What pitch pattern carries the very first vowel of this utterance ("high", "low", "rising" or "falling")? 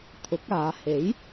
rising